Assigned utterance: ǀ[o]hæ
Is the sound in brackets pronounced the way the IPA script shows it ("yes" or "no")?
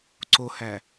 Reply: yes